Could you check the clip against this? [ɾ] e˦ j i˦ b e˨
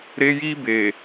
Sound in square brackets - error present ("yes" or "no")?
no